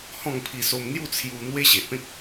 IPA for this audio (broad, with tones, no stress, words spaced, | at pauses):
hɔ̃˥˧ŋpʰi˧so˧m n̪ju˥˧t͡sʰju˧ n̪we˦ɕe˨ʔpẽ˦k̚